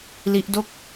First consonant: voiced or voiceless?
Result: voiced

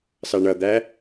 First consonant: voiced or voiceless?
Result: voiceless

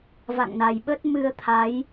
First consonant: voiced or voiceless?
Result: voiced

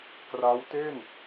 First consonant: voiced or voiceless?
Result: voiceless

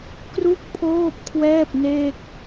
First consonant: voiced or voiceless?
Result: voiceless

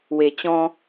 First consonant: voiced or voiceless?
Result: voiced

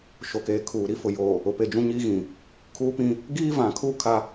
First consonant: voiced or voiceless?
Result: voiceless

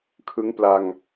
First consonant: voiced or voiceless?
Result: voiceless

